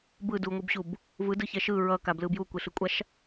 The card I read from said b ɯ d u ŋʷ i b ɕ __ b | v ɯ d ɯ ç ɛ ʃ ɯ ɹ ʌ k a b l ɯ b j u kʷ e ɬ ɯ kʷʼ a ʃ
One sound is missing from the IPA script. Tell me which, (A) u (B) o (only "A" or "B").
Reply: A